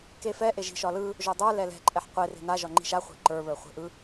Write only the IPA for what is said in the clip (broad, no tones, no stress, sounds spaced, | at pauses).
k e f ɛ ʔ e ʒ i̤ ʃ ɒ l ɯ | ʒ o dˤ ə˞ l ɛ l ɛ̤ ǃʼ ɛ ħ qʷ e r e̤ n a ʒ ɒ ŋ͡ǃ i̤ ʃ a χʷ e̤ ǃ ə˞ β ə˞ χʷ e̤ ʔ ɯ